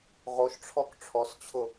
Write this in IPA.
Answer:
ʁ o ʃ ʈ͡ʂʰ ɔ k ʈ͡ʂʰ ɔ s t͡ɕʰ ʊ

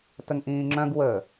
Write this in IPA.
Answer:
t ə ŋ ʔ ĩː ŋ͡ǁ œ̃ ɡ w ə

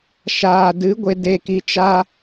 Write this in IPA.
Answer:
ʃ aː˨ d ɨ˨˦ ɡʷ e˧ d e˧ k i˧ t͡ʃ a˦

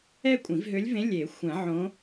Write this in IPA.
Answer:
ɛ˥˧ kʷʼ ĩ˨˩˦ v ɦ ø˧˥ lʲ v ẽ˧˥ lʲ e˨˩˦ xʷ ɛ̃˨˩˦ ʕ õ˧˥

